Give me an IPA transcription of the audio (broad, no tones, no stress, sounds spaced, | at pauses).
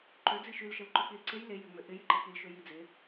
ǃ ø d͡z i ʃ y l ʃ ə l ǃ ø k͡p i l ǀ e j l e j ø ŋ͡m ø ʔ ɪ j ɪ ǃ e k͡p i l ʃ ø j i d͡z ɪ